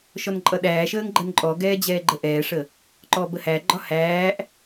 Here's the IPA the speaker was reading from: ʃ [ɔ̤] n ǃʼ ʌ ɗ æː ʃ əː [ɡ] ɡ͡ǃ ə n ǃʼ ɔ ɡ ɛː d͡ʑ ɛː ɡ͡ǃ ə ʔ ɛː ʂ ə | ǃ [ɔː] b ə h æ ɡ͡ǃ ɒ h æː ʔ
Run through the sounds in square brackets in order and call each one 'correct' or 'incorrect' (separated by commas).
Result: incorrect, incorrect, correct